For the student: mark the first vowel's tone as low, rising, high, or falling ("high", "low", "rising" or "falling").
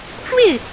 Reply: falling